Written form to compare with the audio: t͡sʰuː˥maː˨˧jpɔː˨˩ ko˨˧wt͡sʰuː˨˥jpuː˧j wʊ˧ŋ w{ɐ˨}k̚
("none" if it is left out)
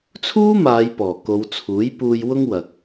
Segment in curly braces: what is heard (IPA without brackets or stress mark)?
ɐ˨